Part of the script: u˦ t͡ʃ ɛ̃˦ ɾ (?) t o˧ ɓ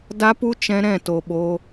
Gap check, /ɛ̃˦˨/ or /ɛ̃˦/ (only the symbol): ɛ̃˦˨